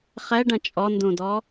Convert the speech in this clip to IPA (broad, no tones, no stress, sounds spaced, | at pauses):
χ ɛ ɖ ɐ̃ t͡ʃʼ ɔ n d ũ d ɔ